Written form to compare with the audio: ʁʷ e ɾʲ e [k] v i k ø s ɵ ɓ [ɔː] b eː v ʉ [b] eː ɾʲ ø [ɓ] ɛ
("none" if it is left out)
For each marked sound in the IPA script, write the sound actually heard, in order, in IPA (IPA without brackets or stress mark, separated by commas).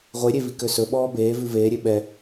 none, ɔː, v, ɓ